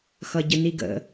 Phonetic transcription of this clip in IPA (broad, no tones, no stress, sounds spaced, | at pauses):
x ʌ ɟ ə n i ɡ ə̰